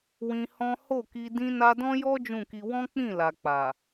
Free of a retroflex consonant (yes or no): yes